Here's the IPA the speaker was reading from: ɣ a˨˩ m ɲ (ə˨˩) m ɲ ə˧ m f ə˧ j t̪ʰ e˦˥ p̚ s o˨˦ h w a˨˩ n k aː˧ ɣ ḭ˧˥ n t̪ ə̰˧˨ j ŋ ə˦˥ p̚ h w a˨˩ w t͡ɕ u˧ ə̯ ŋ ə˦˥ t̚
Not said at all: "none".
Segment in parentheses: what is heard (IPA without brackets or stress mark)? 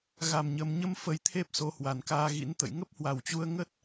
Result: ə˨˩